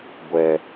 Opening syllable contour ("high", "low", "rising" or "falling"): low